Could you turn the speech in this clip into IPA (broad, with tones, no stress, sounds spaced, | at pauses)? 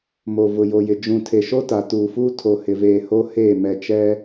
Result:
m o˨ v ʊ˨ j o˨ j ɪ˨ d͡ʒ ũ˨ tʰ e˨ ʃ o˦ t a˨ t uː˨ f uː˦ tʰ o˨ h ɪ˨ v eː˨ h o˦ h eː˦˨ m ɛ˨ t͡ʃ ɛ˦